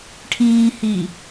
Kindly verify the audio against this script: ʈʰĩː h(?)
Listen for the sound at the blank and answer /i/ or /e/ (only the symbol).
i